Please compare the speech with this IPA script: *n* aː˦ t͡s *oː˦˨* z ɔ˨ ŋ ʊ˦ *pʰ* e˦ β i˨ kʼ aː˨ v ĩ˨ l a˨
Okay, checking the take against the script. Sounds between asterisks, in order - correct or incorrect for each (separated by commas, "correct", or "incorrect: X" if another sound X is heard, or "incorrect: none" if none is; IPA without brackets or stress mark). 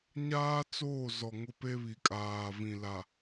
incorrect: ɲ, correct, incorrect: p